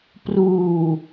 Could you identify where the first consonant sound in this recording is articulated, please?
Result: labial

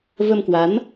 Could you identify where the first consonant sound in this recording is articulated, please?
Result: labial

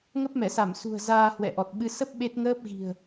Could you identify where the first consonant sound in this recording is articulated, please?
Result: velar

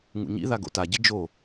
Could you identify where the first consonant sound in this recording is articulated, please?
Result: velar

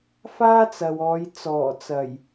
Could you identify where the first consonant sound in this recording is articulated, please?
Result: labial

